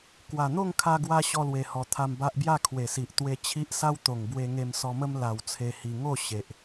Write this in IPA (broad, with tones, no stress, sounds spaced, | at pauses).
k w a˨˩ n̪ o˥˧ ŋ kʰ a˧ ɡ w a˧ ɕ ɔ˧ l w e˨˩ h ɔ˨˩ t̪ʰ a˧ m b a˦ ʔ b j a˥˧ kʰ w e˨˩ s i˨ ʔ t̪ w e˧ t͡ɕʰ i˦ ʔ s a˦ w t̪ o˨˩ ŋ b w e˧ ŋ e˧ m s ɔ˧ m ə˦ m l a˧ w t͡sʰ e˧ h i˧ ŋ o˥˧ ɕ e˨ ʔ